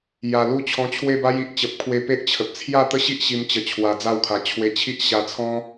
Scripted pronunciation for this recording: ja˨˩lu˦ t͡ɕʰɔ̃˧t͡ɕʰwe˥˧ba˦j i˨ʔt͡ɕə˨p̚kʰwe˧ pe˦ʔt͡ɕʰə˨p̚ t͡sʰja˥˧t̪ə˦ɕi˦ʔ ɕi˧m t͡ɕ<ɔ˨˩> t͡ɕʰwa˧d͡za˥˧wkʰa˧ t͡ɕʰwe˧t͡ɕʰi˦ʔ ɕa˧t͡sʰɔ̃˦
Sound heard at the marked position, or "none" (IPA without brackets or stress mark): ə˨˩